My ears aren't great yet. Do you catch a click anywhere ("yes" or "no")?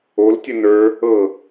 no